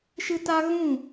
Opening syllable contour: high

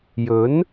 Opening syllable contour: rising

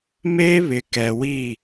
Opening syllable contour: high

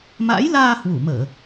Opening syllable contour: rising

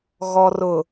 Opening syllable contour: low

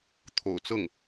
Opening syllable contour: low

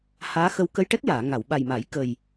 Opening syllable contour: rising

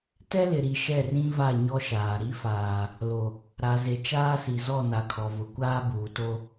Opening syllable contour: high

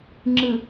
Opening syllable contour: low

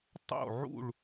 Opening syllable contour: falling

